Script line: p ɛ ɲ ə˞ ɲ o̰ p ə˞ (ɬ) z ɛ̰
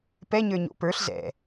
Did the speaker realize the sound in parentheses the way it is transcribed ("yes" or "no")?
yes